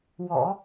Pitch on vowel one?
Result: low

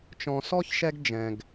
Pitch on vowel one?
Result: low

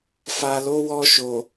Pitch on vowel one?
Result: low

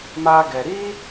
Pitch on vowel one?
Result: high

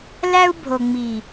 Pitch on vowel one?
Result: high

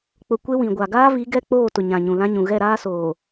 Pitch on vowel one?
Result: low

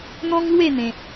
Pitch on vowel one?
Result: high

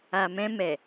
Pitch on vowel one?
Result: low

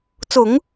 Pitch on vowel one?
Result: low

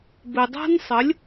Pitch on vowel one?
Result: low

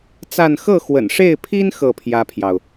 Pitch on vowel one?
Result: falling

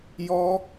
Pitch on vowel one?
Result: high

